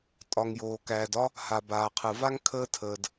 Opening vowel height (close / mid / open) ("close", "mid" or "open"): open